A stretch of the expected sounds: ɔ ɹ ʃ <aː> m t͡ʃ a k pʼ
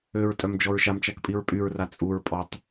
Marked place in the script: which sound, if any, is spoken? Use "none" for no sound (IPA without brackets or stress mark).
a